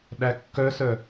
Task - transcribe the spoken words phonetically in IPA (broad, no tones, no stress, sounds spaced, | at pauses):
ɗ æ kː œ s œ